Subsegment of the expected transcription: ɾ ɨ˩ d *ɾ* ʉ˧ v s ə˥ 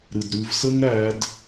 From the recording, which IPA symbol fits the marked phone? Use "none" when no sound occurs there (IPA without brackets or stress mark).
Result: ɾ